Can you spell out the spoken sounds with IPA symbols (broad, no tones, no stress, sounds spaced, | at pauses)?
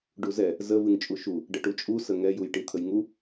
ɖ u z ɛ | z ə v ɨ ŋ t͡ʃʼ u ʃ u | ɖ ə ʈ u t͡ʃʼ u s ə ŋ ɛ j u j ʈ i t̪ʰ ə j ŋ u